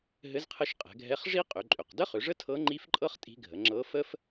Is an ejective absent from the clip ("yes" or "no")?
no